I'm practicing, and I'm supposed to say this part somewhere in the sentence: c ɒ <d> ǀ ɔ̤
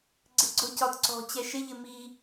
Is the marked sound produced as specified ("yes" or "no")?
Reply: yes